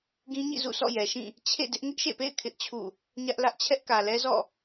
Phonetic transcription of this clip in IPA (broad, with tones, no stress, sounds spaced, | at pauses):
ɡ ĩ˦ ɲ ḭ˦˨ z ṵ˦˨ sʰ ɔ̰˦˨ j ɛ˨ ʃ ĩ˦˨ | t͡ɕʰ ḛ˦˨ d ɪ˦ ʔ ŋ ɪ˦ ʔ ʃ ḛ˦˨ p ḛ˦˨ ɪ̯ kʰ ɪ˦ ʔ t͡ɕʰ ṵ˦˨ | ɲ ä˦ ʔ l ä˦ ʔ t͡ɕʰ ɛ˦ ʔ k ä˨ l ɛ˦ z ɔ̰˦˨